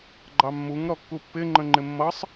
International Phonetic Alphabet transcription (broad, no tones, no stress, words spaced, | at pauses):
ɡ͡ǃɑmːuŋ ɾɔkːupːɪ ŋ͡ǃə̃ŋ͡ǃɪmːʌsˤ